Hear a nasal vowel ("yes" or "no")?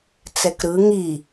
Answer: no